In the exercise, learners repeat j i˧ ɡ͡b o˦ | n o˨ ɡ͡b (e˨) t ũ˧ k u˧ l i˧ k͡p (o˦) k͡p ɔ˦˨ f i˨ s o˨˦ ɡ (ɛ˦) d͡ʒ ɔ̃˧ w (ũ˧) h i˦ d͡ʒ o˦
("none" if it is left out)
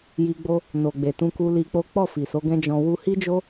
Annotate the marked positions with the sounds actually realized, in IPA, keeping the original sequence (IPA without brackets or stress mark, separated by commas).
e˨, o˦, ɛ̃˦, u˧